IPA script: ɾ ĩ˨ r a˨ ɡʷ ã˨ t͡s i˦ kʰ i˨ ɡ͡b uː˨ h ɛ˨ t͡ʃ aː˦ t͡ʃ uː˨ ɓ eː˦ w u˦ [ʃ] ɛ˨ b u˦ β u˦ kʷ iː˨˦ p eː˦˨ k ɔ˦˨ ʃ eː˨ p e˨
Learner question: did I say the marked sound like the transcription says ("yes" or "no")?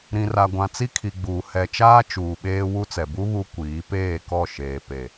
no